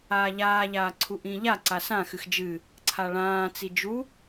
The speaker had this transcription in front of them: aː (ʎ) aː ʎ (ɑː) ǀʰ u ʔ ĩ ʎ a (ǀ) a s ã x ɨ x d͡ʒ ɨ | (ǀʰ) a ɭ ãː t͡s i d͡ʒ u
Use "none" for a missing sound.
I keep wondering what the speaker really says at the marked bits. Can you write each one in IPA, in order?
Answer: ʎ, aː, ǀ, ǀʰ

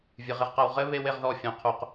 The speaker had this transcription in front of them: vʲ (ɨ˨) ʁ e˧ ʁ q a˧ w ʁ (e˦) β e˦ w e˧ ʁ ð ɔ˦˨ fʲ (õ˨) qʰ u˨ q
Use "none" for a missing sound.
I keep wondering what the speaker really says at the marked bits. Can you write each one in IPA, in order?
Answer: ɨ˨, ɘ˦, õ˨

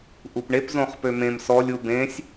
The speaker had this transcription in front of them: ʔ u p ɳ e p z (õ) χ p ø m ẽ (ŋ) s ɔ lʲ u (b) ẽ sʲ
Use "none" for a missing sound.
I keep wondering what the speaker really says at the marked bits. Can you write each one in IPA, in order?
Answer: õ, m, b

